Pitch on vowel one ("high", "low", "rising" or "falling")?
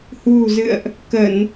low